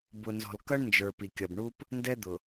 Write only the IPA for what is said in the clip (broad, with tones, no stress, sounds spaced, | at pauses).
b ʊ˨ n z ɔ̤˨ l k ʌ˦ ɳ n d͡ʒ ə˞˨ p i˨ kʲ ʌ˨ b ɳ u˦ p | n d ɛ˦ d̪ ʊ˨